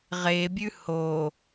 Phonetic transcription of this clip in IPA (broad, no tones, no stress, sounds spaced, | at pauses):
ʁ e bʲ ʉ h o